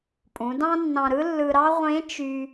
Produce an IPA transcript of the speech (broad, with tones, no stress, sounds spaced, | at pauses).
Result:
pʼ ũ˩˧ d ɑ̃˥ nː ɑ̃˧ ɾ ɯ˥ lː ɯ˧ ɾ ɑ˥ ʁʷ ẽ˧˥ t͡ʃ y˥